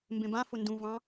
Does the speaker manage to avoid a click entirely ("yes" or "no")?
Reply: yes